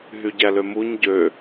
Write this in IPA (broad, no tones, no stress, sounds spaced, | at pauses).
ɦ y ɟ æ l ø m u ɲ ɟ ø